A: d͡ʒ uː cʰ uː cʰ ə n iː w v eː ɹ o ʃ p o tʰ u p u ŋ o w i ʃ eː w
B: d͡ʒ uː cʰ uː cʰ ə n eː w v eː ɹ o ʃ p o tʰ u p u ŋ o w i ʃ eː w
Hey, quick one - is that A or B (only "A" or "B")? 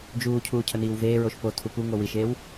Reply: A